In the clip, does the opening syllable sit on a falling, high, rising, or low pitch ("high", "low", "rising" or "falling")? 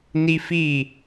high